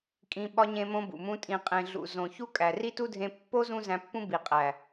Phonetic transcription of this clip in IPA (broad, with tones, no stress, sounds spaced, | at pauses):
kʼ ĩ˧ ɓ ɒ˧ ɲ ẽ˧ m õ˧ b ṵ˨ m ũ˧ tʼ ĩ˨ qʼ ẽ˨ ɮ ṵ˨ z õ˨ ç u˦ kʼ æ˨ r i˦ t u˦ dʱ ẽ˧ pː o˦ z ũ˦ z æ̃˧ pː ũ˦ b i˨ qʼ æ˨